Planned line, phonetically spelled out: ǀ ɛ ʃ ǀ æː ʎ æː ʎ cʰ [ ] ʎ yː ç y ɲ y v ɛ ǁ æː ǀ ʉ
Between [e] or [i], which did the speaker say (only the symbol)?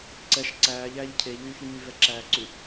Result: e